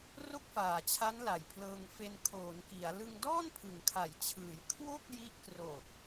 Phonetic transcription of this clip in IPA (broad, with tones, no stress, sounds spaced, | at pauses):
r o˥˩ k̚ f aː˨˩ t͡ɕʰ a˦˥ n l a˨˩ j pʰ l ɤː˧ ŋ f e˧ n kʰ oː˩˦ n k i˩˦ a̯ l ɯ˧ ŋ d ɔː˥˩ n pʰ ɯ˩˦ ŋ kʰ a˩˦ j t͡ɕʰ ɯː˩˦ j kʰ w o˥˩ k̚ j i˦˥ ʔ k r o˨˩ k̚